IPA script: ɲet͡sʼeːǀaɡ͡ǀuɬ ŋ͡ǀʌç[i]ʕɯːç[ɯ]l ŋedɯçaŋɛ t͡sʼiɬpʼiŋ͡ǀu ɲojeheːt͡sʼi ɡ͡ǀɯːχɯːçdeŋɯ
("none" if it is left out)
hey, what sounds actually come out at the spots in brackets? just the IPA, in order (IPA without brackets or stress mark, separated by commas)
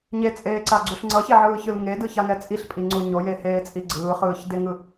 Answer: e, ɯ